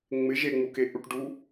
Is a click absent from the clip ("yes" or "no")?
yes